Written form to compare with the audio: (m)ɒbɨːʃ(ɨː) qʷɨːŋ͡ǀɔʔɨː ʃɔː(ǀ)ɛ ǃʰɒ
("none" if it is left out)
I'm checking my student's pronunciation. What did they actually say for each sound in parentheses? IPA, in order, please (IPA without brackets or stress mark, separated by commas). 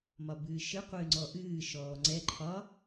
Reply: m, ɨ, ŋ͡ǀ